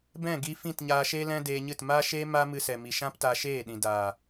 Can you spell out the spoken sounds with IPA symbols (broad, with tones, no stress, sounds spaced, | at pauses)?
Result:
b ɛ̃˦˨ ɡ i˧ f ĩ˦˨ t ɲ aː˧ ʃ eː˦ l ɛ̃˦ d eː˧ ɲ ɨ˦˨ t m aː˦ ʃ eː˦ m aː˦ m ɨ˧ s ɛ˨ m i˨ ʃ ã˦ p t a˧ ʃ eː˦˨ ɗ ĩ˨ d aː˨